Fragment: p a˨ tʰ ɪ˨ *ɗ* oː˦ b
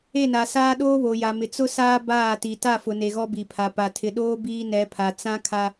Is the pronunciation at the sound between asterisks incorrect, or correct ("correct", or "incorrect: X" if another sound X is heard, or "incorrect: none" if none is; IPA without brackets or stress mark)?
correct